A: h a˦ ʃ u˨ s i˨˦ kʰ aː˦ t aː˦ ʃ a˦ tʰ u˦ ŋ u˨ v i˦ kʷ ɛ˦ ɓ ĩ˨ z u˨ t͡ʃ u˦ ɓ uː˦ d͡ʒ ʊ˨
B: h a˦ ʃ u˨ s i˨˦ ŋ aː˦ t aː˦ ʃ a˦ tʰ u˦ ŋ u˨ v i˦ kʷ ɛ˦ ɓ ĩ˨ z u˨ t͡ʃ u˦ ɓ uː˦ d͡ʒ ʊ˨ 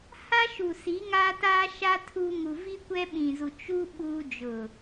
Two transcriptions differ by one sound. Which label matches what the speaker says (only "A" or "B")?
B